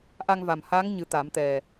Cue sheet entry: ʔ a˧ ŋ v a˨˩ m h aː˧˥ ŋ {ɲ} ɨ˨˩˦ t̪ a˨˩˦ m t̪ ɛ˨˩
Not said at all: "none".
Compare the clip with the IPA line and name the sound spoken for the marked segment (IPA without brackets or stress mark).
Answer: ɲ